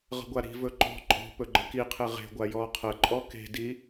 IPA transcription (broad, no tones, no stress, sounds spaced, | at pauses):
ʁ ə̤ ɡʷ a ɾ i̤ v ɵ ǃ ɔ̤ ǃʼ ɔ̤ p ɵ ɡ͡ǃ ə k i qʰ e ʁ e̤ ɡʷ a j ɔ qʰ ə ǃʼ ɔ k e̤ d i